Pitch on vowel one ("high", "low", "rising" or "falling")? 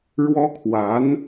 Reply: high